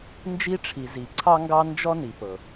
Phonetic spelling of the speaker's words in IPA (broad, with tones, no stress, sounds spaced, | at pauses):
n d͡ʒ i˦ ʈ͡ʂʰ i˨ z i˨ ǀʰ ɑ˦ ŋ ɡ ɑ˦ n d͡ʒ ɔ˦ n i˨ p ɤ˨